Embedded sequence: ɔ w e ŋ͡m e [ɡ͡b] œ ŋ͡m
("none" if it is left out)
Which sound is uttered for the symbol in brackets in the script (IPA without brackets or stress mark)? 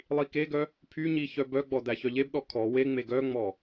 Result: ɡ